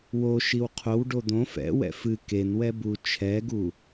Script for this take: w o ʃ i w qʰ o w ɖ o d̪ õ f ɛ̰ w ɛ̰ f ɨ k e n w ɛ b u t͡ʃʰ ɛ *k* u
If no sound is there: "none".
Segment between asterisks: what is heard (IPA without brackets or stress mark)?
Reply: ɡ